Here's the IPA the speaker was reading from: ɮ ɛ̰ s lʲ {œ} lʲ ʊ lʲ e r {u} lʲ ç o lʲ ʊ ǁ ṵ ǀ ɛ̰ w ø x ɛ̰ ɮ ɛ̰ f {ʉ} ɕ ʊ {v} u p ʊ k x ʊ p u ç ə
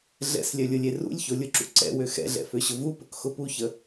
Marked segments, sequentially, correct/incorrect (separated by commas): correct, incorrect, incorrect, correct